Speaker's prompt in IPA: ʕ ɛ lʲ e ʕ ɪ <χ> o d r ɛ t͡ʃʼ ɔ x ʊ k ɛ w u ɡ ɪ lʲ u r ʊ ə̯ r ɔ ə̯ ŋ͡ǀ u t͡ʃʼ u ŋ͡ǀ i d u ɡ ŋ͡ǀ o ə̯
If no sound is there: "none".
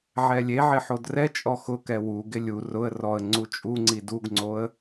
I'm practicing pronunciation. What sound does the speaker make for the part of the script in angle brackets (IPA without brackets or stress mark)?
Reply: ħ